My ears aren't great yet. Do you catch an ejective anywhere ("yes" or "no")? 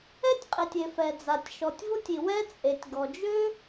yes